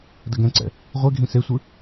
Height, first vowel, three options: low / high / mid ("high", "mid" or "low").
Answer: low